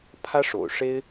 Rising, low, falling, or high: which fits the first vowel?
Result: high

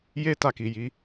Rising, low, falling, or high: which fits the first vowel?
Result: high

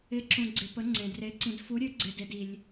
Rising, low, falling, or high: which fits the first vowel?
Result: rising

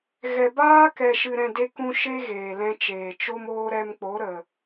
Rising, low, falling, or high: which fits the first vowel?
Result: low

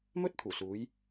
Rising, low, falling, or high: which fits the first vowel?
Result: high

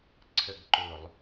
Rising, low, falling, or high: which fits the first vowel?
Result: falling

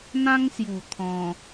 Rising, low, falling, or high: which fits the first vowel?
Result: high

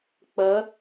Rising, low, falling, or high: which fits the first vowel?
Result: rising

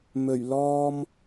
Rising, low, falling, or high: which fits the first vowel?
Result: low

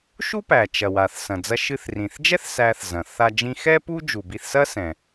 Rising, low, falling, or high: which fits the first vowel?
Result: high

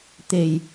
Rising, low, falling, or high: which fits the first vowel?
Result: low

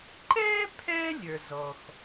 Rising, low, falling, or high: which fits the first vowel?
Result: high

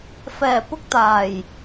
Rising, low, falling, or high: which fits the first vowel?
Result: low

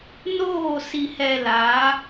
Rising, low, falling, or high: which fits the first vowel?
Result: falling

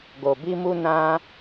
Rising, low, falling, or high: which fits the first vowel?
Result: low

